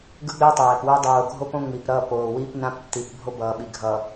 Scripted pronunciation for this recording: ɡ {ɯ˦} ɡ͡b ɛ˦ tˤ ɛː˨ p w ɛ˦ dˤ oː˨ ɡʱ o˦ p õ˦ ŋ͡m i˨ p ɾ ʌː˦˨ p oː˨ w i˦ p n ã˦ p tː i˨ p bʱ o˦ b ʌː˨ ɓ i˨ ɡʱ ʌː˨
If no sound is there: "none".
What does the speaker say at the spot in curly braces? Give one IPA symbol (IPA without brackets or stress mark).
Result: ɯ˦